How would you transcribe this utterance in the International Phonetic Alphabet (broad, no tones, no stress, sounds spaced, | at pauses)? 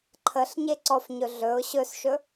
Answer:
ǃʰ ə ɬ ɲ e ǀ ɔ f ɲ ɵ ɮ ɵ ʊ̯ ɕ ɵ s ʃ ɵ